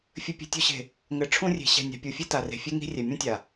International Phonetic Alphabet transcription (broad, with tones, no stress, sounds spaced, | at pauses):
fʲ ɘ˨ pʲ e̤˨ tʲ u˨ ɕ e̤˨ | ŋ ɘ˨ ʈ͡ʂʰ ũ˦ rʲ e̤˨ ɕ ɛ̤˨ nʲ a̤˨ pʲ u˨ fʲ e˦ t a˨ r e̤˨ fʲ e˦ ŋ i̤˦ rʲ ɛ˨ mʲ ũ˦ tʲ a˨